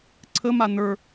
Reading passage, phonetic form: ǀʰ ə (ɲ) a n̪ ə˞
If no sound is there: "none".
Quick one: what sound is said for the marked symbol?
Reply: m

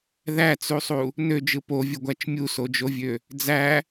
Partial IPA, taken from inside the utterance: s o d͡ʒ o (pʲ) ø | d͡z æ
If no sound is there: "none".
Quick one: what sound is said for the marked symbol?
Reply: vʲ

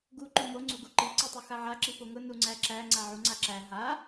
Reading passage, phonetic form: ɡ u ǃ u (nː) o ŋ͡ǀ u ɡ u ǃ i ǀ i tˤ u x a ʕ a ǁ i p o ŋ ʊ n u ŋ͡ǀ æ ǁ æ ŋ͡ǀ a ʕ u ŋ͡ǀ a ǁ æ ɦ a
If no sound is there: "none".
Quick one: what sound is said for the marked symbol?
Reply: m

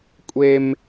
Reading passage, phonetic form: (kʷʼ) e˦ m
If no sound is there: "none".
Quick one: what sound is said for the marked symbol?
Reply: kʷʼ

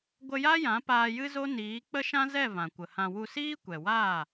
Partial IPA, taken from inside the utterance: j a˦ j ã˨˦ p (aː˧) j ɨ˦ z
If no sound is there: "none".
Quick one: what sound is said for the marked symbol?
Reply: aː˧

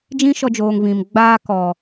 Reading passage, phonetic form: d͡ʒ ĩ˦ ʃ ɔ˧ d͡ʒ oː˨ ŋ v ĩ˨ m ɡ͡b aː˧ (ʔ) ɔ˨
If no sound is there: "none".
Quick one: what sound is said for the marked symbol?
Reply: k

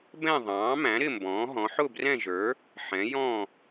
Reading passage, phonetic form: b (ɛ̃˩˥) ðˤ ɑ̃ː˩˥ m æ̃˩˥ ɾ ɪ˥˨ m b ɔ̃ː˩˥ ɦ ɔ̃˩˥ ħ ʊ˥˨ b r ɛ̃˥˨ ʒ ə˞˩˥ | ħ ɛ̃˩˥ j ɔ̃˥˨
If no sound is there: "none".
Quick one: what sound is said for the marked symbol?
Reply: ɛ̃˥˨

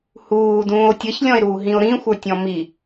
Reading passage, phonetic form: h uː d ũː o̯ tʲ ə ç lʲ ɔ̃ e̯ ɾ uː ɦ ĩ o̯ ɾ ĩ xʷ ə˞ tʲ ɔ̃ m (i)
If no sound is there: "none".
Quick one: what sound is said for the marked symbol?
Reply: i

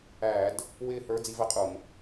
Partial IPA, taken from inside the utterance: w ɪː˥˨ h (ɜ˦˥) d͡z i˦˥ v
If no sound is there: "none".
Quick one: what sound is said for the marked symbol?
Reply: ə˞˦˥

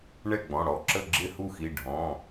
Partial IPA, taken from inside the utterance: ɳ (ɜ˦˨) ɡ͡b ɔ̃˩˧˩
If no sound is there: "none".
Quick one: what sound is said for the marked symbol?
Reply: ɛ˦˨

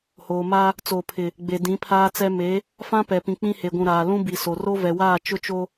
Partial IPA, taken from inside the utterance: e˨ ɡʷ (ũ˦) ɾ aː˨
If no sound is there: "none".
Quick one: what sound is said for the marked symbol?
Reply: ũ˨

